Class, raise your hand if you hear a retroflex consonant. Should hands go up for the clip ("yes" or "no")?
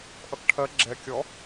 yes